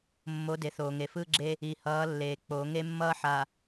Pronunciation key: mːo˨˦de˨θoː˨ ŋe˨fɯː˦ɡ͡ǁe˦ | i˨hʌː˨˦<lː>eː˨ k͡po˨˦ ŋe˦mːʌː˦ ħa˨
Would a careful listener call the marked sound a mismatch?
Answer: no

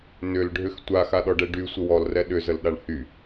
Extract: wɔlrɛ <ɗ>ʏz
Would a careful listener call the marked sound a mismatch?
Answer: no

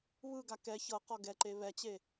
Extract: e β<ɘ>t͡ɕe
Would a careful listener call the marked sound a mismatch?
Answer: yes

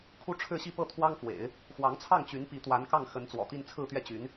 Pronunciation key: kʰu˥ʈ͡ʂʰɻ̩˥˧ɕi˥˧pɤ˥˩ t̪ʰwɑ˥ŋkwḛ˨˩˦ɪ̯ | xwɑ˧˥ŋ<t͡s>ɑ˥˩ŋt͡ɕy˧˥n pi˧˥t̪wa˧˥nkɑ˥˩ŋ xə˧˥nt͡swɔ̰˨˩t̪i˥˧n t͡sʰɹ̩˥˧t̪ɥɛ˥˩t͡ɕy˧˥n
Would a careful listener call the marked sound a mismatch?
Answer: yes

